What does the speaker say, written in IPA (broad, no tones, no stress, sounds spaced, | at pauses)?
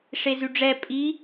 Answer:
ʂ e z y ɖ͡ʐ ɛ pʼ i